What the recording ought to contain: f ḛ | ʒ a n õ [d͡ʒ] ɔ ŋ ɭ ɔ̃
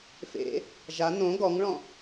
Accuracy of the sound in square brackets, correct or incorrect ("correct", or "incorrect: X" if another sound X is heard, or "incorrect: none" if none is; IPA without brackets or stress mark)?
incorrect: ɡ